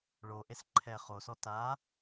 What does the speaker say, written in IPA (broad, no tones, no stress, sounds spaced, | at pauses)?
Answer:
ɭ o ʔ e s ǃʰ ɛ χ o s ɔ t a